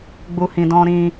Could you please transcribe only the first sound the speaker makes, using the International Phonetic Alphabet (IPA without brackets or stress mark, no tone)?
ɡ͡b